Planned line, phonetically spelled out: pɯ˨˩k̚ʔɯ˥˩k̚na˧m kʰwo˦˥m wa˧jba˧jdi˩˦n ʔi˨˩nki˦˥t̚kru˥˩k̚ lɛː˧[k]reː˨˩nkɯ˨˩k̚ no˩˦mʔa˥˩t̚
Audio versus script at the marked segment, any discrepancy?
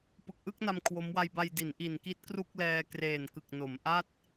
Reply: no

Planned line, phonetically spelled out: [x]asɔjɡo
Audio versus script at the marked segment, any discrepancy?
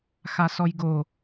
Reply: no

